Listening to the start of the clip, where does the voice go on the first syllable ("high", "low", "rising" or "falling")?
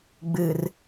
low